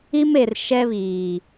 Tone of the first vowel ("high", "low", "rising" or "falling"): high